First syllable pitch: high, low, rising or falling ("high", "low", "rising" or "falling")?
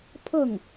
falling